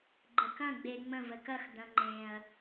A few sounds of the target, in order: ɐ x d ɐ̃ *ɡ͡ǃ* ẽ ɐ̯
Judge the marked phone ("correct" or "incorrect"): incorrect